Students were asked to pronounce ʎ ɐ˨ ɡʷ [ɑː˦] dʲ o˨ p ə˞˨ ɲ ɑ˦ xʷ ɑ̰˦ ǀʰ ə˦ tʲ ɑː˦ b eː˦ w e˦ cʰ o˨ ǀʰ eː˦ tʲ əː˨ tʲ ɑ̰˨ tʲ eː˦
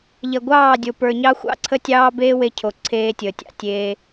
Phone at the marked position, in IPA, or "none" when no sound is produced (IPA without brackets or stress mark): ɑː˦˨